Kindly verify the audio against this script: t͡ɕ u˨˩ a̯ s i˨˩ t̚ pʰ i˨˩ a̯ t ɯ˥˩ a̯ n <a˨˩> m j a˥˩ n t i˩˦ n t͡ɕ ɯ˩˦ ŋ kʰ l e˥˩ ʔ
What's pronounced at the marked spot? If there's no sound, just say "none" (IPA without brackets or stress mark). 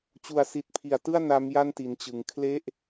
a˦˥